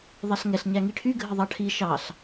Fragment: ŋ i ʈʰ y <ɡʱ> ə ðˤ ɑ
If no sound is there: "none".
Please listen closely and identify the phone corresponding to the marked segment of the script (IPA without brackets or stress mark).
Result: ɡʱ